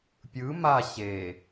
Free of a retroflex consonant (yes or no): yes